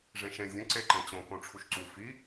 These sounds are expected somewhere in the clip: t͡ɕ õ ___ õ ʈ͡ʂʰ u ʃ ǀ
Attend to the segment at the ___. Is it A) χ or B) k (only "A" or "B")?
B